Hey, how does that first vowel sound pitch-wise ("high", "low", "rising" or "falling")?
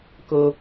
low